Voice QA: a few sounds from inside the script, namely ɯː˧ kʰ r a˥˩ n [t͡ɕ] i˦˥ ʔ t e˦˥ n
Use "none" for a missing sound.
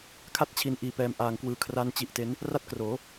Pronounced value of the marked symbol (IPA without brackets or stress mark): t͡ɕ